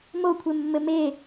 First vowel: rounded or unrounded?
rounded